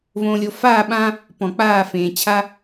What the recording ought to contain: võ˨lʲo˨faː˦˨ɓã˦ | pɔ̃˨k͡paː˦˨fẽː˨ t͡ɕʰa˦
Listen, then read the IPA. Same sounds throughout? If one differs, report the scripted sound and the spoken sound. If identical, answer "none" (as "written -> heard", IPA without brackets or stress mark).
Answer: none